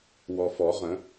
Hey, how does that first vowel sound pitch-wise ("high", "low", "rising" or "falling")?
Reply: low